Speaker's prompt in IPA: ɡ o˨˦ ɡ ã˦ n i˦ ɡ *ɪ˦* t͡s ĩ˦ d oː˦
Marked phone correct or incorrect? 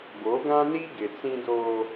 incorrect